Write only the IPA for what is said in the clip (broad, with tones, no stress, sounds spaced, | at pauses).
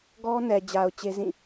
ɡ ɔ˦ n ɛ˨ d͡ʑ a˨ ʊ̯ t͡ɕ e˦ z ĩ˦˨